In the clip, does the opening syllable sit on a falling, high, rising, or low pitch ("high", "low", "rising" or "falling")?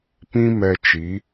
high